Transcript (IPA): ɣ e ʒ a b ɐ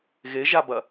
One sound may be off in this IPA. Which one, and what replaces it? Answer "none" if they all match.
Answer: none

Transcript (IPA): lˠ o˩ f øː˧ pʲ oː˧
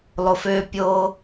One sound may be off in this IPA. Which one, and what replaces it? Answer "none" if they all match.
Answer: none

